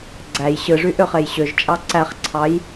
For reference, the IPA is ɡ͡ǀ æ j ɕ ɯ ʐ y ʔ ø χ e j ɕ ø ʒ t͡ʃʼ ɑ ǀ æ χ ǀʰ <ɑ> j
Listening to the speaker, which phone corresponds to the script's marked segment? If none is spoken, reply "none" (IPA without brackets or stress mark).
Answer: ɑ